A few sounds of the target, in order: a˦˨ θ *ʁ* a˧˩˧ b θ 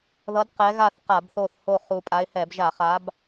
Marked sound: incorrect: q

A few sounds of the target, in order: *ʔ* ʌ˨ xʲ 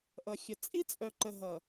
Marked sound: correct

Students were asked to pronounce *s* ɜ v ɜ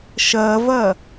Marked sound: incorrect: ʃ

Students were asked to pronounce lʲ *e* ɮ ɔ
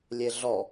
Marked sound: correct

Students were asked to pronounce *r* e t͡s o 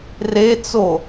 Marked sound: correct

